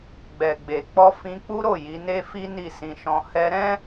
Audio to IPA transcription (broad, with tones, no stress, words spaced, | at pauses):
ɡ͡bɛ˨ɡ͡be˨k͡pɔ˧ fĩ˧k͡pu˦ɾo˦˨ ji˨˦ne˦fi˦ ni˦˨sĩ˧ʃɔ̃˧ hɛ˧ɾɛ̃˦